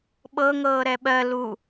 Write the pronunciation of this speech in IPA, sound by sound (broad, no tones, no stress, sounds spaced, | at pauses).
ɓ ɤ ŋ ɤː ɾ ɛ ɓ ɜ l u